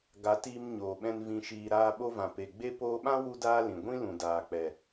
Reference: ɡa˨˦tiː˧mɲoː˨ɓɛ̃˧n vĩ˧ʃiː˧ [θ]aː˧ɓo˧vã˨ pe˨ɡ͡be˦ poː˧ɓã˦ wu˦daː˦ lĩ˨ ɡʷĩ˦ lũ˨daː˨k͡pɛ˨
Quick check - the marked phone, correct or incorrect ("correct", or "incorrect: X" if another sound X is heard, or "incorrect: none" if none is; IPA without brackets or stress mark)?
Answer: incorrect: ɾ